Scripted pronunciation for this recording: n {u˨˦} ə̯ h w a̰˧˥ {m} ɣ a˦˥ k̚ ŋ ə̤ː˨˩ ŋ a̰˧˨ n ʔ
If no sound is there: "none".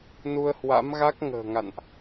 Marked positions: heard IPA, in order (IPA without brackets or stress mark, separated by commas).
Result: u˧, m